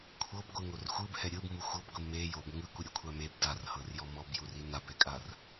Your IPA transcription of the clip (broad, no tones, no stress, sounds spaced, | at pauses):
kʷʰ ɤ b ɡʷ ɯ ŋ o r xʷ ɯ b h ɛ ɾʲ ɯ b m u xʷ ɤ b ɡʷ i m e j o b ŋ ɯ kʷ ɯ ɾʲ o kʷʰ a m e b d a r h ɤ r j ɔ m ɔ b j u r i n a b ɛ kʼ a r